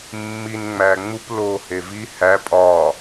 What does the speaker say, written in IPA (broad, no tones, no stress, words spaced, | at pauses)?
mːin ŋ͡mæŋ͡mup loːhevi hæ pʼɒː